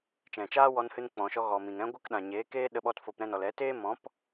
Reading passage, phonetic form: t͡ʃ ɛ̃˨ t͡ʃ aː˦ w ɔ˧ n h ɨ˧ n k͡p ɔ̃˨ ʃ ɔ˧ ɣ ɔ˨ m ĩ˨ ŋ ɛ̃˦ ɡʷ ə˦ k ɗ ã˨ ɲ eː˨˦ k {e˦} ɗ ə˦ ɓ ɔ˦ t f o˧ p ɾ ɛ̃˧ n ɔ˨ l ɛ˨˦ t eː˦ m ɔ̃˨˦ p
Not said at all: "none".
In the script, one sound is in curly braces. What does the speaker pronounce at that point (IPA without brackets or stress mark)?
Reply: eː˦